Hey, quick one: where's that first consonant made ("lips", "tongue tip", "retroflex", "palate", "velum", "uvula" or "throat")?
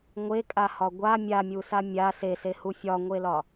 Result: velum